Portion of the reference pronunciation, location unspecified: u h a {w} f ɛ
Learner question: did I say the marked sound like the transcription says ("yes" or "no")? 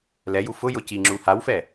yes